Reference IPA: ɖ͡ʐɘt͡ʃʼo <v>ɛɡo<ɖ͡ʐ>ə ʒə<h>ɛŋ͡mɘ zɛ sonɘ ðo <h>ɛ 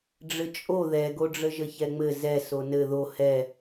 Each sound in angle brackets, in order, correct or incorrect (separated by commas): incorrect, correct, incorrect, correct